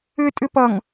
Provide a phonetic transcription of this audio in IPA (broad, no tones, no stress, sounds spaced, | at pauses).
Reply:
ʏ tʼ ʏ p ʌ ŋ